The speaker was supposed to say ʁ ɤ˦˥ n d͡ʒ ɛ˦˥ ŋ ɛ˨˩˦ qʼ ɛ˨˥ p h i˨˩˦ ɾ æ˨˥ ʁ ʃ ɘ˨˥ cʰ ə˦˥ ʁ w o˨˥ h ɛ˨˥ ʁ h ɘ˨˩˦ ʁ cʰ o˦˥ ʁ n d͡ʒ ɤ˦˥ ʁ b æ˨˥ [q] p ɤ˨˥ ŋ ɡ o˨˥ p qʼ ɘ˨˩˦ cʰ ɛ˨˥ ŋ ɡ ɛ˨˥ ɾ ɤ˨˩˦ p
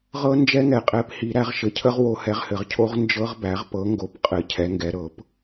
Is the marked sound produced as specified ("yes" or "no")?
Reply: no